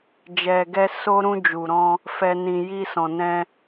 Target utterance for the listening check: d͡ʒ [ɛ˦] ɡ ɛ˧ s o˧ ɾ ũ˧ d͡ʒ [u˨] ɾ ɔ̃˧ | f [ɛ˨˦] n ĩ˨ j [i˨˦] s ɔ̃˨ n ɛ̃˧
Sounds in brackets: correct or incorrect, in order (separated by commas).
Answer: incorrect, correct, incorrect, incorrect